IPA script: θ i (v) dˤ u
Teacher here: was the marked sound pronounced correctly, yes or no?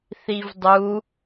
yes